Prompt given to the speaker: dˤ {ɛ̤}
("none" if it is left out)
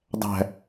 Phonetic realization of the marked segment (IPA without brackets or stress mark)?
æ̤